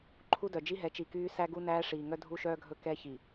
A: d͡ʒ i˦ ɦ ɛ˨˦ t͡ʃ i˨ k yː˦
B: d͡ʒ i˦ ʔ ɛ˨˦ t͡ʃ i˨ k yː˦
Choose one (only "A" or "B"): A